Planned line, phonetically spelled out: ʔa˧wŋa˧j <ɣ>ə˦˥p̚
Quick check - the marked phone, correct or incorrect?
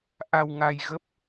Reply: correct